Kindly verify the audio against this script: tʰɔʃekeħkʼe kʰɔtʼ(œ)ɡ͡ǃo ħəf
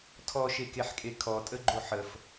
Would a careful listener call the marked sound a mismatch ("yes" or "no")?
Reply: yes